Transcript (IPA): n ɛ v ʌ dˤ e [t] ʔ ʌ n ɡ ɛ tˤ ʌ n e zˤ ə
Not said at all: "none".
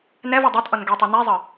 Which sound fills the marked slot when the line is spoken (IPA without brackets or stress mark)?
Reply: t